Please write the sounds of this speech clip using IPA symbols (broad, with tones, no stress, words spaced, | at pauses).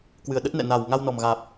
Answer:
kwɨ˨˩ə̯ɗə˦˥t̚nɛ̰˧˨ na˨˩w ŋa˧wnɔ˨˩m ɣaː˨˩p̚